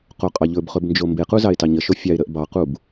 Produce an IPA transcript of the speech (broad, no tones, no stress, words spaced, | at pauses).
qoqʼɑʎɵbχɵb nd͡ʒombequ zɑɪ̯tɑɲəʃo fʲɑɪ̯ɾəʔ bɑqub